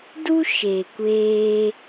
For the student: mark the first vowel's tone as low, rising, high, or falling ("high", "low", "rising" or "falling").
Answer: high